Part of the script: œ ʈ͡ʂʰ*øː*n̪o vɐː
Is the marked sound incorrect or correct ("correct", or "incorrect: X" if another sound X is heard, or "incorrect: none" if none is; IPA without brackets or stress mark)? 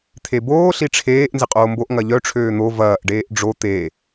correct